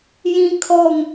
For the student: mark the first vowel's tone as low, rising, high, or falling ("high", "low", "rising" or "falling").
high